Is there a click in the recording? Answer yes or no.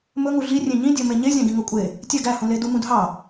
no